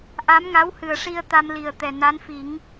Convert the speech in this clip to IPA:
ʔ a˧˥ m ŋ a˧˥ w h ɨ˨˩ ə̯ ʂ i˧ ə̯ t̪ a˧ m l i˨˩ ə̯ t̪ ɛ˨˩ n a˧˥ n f i˨˩˦ ŋ

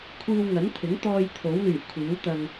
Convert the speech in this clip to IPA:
kʷʰ iː˧ w ŋ ɐ˨˥ n t̪ʰ ɪ˨˥ ŋ t̪ ɔː˧ j t̪ʰ o˨˥ w l yː˨˩ kʷʰ iː˨˥ w t̪ ɐ˧ ŋ

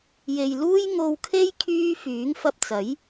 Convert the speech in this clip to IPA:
j e˨ j l uː˥ j ŋ o˧ w kʰ e˥ j kʰ yː˥ f yː˨˥ ŋ f ɐ˧ p̚ t͡s ɐ˨˥ j

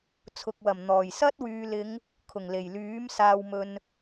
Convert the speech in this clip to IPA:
t͡sʰ ʊ˨ k̚ w ɐ˨˩ m n̪ ɔː˨˩ j s ɐ˥ t̚ w yː˨ l ɪ˨˧ ŋ | kʰ ʊ˨˩ ŋ l e˨˩ j l yː˨˥ m s aː˨ w m ɵ˨ n

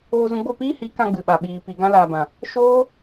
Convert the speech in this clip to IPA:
oː˧ z ũ˧ ɡ͡b o˦˨ p iː˦ h i˨˦ k ã˧ ɡ͡b ɨ˨ ɓ a˨ ɓ iː˨ p i˨ ɡ ã˧ l aː˨ b ã˨ | ʃ oː˦

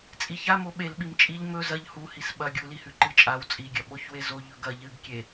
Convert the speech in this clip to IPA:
t͡sʼ i ç a m o ɓ e l ɓ i m t͡ʃʼ i ʎ m ɵ z ɐ ʎ h u h i s ɓ ɐ ɡʲ u l i h ʉ ǃ ɨ t͡ʃʼ a w t͡sʼ i ɡʲ ɐ ɓ o ç w e z o ʎ ɵ ɡ ɐ ʎ ɨ ɡ kʲ e

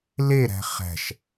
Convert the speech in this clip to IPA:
l e ɾ æ̤ χ æ̤ ʃ

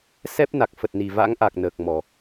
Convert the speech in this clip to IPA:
s ɛ˦˥ p̚ n a˨˩ k̚ f ə˨˩ t̚ n i˨˩ v a̰˧˥ ŋ ʔ a˨˩ k̚ n əː˨˩ k̚ m ɔ˨˩

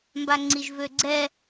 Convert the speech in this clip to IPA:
m b a ŋ͡ǀ i ʒ v ø ɡ͡ǀ ɛ

